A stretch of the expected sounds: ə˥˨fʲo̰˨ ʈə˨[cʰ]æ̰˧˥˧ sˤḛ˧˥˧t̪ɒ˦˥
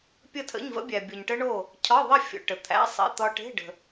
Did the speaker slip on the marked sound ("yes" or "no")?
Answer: yes